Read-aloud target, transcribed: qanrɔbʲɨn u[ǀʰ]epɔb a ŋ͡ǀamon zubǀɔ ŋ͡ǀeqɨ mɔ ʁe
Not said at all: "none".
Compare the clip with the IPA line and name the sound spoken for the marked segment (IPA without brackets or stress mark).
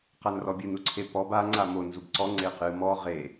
ǀʰ